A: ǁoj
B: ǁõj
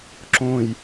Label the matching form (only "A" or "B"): B